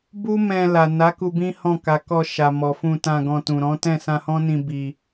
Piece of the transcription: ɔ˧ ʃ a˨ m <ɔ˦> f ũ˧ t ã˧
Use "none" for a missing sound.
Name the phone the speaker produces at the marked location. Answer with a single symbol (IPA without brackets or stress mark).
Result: ɔ˨